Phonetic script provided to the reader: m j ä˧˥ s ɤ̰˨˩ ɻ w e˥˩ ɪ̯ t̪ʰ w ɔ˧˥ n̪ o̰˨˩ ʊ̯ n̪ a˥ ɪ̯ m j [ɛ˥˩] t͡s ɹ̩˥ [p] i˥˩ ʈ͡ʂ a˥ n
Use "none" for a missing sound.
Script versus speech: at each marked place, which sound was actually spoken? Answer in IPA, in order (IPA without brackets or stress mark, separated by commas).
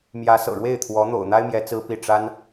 ɛ˧˥, p